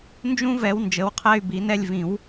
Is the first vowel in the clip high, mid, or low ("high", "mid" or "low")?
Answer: high